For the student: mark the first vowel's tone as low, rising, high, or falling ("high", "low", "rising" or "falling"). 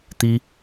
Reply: high